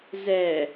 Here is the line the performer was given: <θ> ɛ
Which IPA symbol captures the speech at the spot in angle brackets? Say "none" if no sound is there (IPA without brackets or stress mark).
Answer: z